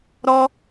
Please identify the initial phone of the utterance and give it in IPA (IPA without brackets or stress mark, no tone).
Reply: ɾ